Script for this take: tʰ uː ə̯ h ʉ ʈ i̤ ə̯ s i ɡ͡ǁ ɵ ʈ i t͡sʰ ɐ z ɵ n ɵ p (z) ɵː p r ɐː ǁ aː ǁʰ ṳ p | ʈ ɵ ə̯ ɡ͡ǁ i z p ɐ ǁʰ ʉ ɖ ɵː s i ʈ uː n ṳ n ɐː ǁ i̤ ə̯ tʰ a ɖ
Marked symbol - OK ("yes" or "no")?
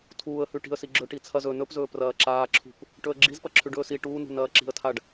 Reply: yes